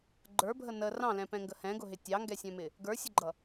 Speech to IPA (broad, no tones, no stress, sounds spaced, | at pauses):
ɡ͡ǃ ə˞ bʱ ə n ə r ɑ̃ l ɛ̃ p ɛ̃ ŋ ɡ ə h ɛ̃ ɡ ʊ ɦ ɪ tʲ ɑ ŋ ɡ ɛ sʲ ɛ̃ m ɪ | ɡ ə˞ sʲ ʊ ɡ͡ǃ ʌ